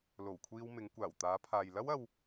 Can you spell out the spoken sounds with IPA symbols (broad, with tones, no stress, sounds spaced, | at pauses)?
l o˨˩ w kʷʰ iː˧ w m ɪ˨˧ ŋ kʷ aː˨˩ w t̪ aː˨˧ pʰ aː˨ j l ɐ˥ w ɐ˧ w